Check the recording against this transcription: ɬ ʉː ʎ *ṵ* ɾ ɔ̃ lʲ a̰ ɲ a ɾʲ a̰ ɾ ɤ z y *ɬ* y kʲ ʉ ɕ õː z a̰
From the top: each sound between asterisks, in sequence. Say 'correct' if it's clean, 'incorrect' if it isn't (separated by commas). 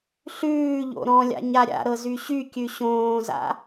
incorrect, incorrect